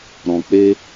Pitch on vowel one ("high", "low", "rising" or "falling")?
low